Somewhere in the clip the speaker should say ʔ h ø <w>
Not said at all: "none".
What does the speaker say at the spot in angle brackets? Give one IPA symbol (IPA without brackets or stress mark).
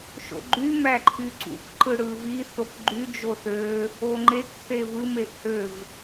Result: v